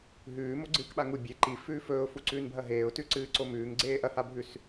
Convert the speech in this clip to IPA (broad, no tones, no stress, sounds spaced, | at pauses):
ɦ ʉː m o ɡ͡ǀ ɨː k ɓ a ŋ u bʲ e ǃ i f ʉː f ɵː ʊ̯ f u ǀ ʉː n bʱ ɐ ɦ eː ʊ̯ t ʉ ǀ ɨː ǀ o m ʉː ŋ ɡ͡ǀ eː ʔ ɐ h a bʱ ʉ s